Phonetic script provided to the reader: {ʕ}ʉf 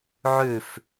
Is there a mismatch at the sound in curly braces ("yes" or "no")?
no